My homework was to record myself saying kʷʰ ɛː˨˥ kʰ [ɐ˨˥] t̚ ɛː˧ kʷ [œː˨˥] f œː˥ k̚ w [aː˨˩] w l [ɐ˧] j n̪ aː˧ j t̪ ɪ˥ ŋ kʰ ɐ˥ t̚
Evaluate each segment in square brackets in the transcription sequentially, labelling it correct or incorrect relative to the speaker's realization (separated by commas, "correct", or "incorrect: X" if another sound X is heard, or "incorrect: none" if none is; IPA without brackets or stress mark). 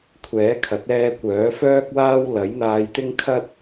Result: correct, correct, incorrect: aː˥, incorrect: ɐ˨˥